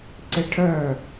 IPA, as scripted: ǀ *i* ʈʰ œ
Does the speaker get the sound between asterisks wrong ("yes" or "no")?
yes